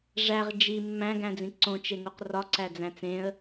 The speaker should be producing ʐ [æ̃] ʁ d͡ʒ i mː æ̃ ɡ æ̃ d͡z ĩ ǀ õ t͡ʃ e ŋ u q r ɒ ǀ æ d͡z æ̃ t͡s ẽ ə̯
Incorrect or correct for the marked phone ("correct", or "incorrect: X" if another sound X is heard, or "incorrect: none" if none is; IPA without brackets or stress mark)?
incorrect: æ